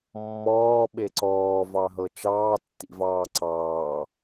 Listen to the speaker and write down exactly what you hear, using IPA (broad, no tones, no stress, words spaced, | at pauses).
mːɔːɓe ǀɔːvɑɦɤ t͡ʃɑːtːḭvɑː ǀɑː